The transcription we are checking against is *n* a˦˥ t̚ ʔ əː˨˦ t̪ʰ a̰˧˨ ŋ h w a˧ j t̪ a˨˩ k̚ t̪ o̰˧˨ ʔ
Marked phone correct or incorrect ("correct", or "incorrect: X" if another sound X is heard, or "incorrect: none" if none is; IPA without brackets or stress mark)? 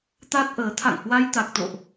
incorrect: t̪